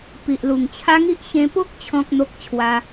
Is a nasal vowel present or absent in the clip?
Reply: present